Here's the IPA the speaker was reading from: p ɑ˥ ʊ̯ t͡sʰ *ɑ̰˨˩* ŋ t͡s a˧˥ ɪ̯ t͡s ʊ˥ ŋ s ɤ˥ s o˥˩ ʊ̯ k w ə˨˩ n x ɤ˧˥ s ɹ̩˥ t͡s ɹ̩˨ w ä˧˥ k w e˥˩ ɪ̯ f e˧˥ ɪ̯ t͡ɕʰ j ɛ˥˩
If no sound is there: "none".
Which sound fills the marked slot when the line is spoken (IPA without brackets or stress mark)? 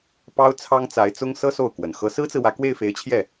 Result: ɑ˥